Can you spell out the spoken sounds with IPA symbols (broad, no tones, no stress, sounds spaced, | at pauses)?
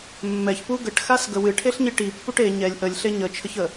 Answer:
mː ɛ ç p u ɡ ə ʈ x a s ɡ ə w ɨ ʈʰ e ɬ ɲ i ʈ i pː u ʈ e ɲ ɛ lʲ ʔ ə lʲ ɬ e ɲ ə t͡ʃʰ ə ç ə